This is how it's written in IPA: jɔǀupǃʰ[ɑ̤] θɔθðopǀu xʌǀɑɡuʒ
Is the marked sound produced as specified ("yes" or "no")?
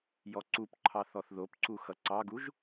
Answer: no